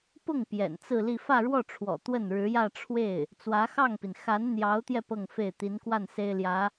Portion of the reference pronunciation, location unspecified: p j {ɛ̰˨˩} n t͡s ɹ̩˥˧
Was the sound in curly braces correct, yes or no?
yes